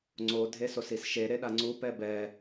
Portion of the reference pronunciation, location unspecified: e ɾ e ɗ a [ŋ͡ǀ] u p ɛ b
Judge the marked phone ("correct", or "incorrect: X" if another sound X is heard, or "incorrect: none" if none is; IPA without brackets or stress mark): correct